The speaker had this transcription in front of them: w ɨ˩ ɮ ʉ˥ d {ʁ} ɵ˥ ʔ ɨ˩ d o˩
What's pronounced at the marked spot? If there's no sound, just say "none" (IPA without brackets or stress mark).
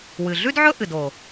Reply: ʕ